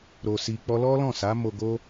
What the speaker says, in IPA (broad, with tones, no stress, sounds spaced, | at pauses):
ɾ o˧ s i˧ k͡p ɔ˦ l ɔ˦ l ɔ̃˦˨ s a˨˦ m o˧ ɡ o˦